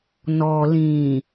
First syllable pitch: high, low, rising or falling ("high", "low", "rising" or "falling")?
low